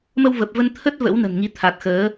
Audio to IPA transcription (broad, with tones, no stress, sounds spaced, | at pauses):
m ə˧ w v ə˨˩ p̚ v ə˧ n t̪ʰ ə˦˥ t̚ v ə̰˧˥ w n ə̤˨˩ n ŋ i˨˦ t̪ʰ a˨˩ t̚ x əː˨˦